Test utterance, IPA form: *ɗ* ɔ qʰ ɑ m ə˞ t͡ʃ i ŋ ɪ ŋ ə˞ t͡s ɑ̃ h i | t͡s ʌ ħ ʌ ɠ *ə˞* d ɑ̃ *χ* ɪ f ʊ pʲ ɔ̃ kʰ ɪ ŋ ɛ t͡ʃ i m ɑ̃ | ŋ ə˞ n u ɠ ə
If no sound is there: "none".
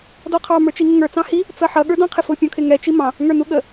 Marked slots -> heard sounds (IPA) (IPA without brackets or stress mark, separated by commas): d, ə˞, qʰ